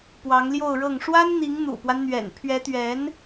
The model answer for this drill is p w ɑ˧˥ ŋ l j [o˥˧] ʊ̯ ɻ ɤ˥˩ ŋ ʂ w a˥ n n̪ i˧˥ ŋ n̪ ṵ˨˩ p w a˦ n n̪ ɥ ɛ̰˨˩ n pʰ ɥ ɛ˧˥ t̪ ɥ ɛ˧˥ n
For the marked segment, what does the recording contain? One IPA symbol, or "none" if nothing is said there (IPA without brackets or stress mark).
o˥˧